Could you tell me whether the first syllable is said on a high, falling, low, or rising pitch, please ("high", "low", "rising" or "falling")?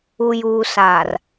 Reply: low